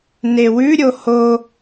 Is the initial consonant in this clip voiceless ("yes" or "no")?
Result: no